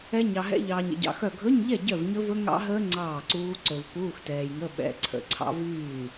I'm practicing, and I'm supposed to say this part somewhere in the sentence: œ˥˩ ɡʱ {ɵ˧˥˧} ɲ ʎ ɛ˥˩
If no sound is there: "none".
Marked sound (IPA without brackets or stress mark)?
ɵ˧˥˧